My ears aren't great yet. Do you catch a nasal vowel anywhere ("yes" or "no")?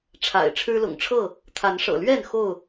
no